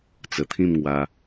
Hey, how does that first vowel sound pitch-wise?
low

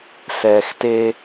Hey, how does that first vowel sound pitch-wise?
low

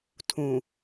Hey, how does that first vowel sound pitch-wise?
low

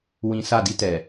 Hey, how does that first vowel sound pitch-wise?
low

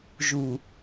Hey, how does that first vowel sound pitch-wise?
low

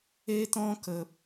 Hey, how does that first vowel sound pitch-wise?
high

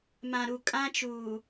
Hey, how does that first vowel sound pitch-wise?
low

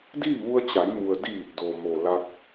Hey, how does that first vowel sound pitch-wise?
falling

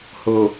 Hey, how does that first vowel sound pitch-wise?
low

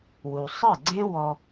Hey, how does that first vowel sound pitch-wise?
low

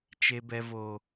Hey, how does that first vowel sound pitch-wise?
high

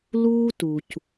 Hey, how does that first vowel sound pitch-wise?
high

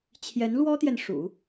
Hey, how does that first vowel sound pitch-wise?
rising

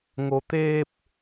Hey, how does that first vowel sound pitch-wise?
low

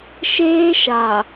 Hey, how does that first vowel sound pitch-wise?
high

